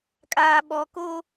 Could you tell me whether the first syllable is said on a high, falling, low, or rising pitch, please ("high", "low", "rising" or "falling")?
low